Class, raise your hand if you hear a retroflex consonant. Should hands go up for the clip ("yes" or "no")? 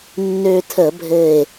no